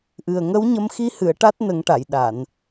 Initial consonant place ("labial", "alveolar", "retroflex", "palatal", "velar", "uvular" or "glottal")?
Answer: glottal